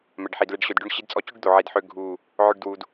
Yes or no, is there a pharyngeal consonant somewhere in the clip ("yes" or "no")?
yes